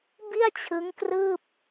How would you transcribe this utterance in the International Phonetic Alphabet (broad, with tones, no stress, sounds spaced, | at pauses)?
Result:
b i˥˩ a̯ t͡ɕʰ ɯ˦˥ ŋ k r ɯː˥˩ p̚